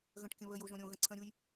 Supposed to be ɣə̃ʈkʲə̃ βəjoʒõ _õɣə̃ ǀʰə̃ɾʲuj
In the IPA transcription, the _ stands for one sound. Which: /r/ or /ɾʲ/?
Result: ɾʲ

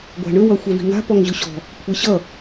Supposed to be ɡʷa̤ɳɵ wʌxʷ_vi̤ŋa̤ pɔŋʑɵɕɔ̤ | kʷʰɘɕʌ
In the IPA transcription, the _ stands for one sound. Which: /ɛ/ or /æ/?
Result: ɛ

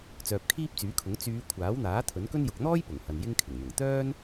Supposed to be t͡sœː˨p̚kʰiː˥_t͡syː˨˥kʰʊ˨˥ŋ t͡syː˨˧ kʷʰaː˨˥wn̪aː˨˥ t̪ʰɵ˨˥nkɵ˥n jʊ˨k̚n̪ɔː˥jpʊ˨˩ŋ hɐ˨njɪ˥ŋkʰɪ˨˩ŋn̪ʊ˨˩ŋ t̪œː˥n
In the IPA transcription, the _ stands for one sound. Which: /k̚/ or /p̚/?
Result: p̚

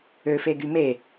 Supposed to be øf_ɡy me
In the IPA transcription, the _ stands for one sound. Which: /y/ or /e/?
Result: e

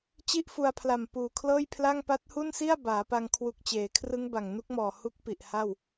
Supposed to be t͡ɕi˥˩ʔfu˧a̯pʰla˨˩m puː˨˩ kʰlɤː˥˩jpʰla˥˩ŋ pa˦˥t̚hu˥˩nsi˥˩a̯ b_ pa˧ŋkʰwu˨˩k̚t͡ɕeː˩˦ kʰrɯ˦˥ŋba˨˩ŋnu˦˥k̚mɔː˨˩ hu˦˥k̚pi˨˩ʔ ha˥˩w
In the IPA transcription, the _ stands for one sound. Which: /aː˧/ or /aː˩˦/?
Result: aː˩˦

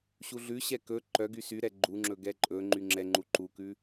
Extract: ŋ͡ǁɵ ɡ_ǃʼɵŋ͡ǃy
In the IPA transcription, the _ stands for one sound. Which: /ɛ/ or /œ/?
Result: ɛ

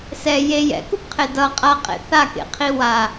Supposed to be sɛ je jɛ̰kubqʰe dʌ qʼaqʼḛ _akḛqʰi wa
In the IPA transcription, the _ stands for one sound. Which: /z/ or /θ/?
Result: θ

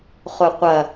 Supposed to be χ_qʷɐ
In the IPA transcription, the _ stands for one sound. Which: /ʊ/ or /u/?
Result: ʊ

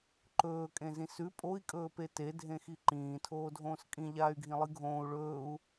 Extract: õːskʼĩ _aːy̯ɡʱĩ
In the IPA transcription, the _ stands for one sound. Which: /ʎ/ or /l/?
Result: ʎ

